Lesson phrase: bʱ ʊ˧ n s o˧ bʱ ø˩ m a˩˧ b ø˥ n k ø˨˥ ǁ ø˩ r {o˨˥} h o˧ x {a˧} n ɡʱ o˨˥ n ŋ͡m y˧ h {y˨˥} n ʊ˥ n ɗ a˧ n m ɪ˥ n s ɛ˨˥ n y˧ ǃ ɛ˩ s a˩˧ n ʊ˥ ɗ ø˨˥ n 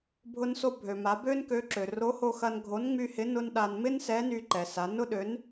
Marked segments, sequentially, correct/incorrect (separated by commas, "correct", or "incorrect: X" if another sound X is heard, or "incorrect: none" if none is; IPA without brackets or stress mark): correct, incorrect: ɐ˧, incorrect: ɪ˨˥